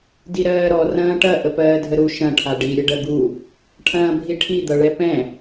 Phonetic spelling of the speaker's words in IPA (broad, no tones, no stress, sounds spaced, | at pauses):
d i ɾ ɜː ɾ ɔ r ɐ̃ː ʈ ɐ ʔ ə p ɜː dʱ ə ɾ u ʃ ɐ̃ ʈʰ a ɖ i ɾʲ ə ɖ ɜ ɡ u | ʈʰ ɐ̃ː bʱ i ʈʰ i d̪ ɐ ɭ ɛ p ɛ̃